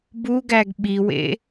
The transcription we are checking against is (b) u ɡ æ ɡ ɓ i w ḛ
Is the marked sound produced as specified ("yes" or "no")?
yes